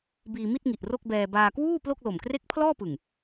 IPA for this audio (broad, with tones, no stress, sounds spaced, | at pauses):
b iː˧ m i˥˩ t̚ ŋ i˨˩ ʔ r o˥˩ k̚ b ɛː˧ b aː˧ k w uː˥˩ p l o˥˩ k̚ l o˨˩ m k r e˥˩ k̚ pʰ l ɔː˥˩ p ɯ˨˩ ŋ